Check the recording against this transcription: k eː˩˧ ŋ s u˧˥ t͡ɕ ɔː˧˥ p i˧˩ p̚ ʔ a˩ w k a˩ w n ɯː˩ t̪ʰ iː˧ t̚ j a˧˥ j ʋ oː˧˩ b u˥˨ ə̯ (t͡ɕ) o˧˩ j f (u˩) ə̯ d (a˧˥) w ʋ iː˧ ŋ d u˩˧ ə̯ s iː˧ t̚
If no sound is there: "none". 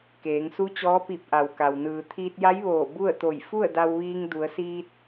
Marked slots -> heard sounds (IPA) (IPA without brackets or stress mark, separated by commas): t̪, u˥˨, a˧